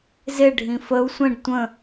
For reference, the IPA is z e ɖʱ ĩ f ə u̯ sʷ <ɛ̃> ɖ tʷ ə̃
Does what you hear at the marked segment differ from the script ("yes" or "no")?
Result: yes